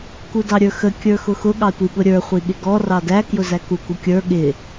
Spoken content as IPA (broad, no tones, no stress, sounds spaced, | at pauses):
k u d ɑ ɾʲ ə˞ x ə kʲ ə˞ x ʊ x ʊ ɠ ɑ tʷ i ɠ ʊ ɾʲ ə˞ χʷ i ɠ ɪ ɡ ɔ r ɑ d æ k j ʊ z æ k u k u kʲ ə˞ ɠ ɪ